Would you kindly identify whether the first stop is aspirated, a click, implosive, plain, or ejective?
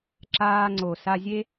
click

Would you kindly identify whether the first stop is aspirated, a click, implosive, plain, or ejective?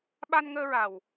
implosive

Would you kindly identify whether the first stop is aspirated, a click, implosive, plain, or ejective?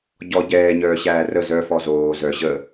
plain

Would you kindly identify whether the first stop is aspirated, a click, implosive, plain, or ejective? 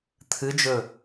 aspirated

